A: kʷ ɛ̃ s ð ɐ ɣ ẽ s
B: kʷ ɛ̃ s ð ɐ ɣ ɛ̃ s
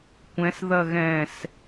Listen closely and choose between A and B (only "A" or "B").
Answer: B